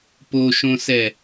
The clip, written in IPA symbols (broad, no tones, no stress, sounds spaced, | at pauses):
p o ʃ õ s ɛ